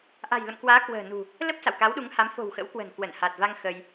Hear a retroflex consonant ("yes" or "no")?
no